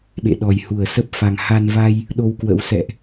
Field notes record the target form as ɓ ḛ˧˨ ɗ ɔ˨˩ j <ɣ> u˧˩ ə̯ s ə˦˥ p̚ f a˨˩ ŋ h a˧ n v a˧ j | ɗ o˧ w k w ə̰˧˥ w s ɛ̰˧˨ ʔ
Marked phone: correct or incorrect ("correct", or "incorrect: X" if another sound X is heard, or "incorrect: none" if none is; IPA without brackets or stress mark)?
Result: incorrect: h